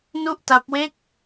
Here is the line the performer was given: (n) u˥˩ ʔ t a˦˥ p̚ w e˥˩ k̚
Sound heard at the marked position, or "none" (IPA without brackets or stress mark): n